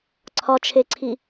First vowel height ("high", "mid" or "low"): low